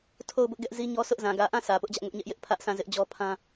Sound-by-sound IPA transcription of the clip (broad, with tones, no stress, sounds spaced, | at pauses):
tʰ o˦˨ ʊ̯ b ʊ˦ ʔ ɡ ɛ˦ ʔ z i˦ ɲ ɔ˦ s ʊ˦ ʔ z ã˨ ɡ ä˨ ʔ ã˦˨ s ä˨ p ʊ˦ ʔ d͡ʑ ä˦ ʔ ŋ ʊ˦ ʔ ɲ ɛ˦ ʔ j ɪ˦ ʔ pʰ ä˦ ʔ s ã˦˨ z ɪ˦ ʔ d͡ʑ ɔ˦ pʰ ã˦